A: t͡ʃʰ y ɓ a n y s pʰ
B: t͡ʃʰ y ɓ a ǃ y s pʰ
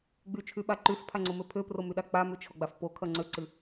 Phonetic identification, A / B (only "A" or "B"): B